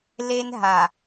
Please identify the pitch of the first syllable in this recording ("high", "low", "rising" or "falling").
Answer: high